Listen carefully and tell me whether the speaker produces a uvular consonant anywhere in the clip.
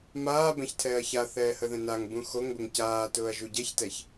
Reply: no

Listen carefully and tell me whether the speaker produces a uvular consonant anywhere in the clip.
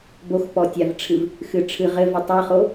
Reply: yes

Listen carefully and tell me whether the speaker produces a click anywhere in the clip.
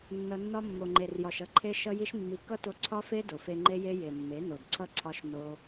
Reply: yes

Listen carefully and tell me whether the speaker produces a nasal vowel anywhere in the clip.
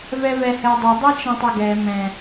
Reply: yes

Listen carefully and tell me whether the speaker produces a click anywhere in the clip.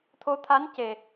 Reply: no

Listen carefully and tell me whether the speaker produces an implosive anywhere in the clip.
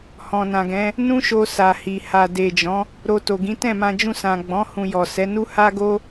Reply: no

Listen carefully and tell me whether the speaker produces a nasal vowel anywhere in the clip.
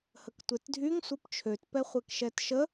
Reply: no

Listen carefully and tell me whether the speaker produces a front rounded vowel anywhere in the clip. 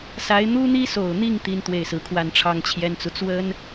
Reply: no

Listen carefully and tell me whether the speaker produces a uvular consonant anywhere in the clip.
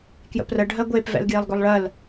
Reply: no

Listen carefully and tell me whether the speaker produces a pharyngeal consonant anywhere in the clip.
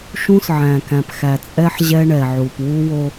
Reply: yes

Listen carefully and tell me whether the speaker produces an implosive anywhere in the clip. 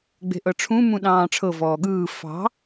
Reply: yes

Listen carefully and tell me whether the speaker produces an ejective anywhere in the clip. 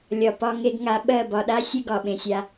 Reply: no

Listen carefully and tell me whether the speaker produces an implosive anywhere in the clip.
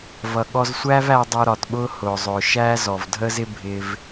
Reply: yes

